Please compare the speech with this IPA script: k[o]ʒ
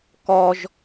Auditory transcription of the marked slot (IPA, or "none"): ɔ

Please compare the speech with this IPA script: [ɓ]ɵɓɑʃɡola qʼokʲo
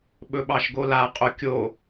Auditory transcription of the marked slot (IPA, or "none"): ɓ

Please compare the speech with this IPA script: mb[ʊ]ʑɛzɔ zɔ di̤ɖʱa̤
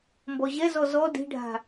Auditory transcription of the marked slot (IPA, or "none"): ɔ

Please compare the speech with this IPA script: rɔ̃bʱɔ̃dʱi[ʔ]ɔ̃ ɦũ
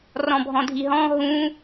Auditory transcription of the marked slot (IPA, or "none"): ɦ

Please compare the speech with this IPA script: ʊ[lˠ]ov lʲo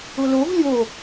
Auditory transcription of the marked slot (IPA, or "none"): l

